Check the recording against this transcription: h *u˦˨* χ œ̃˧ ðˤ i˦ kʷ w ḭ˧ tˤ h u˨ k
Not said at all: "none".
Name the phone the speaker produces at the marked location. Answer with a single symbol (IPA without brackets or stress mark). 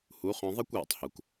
u˨˦